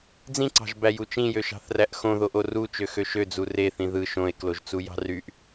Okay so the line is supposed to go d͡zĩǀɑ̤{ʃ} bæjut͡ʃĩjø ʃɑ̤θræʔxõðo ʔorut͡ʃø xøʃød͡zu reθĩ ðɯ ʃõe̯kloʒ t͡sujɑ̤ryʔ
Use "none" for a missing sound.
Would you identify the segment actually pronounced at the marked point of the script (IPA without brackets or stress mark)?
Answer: ʒ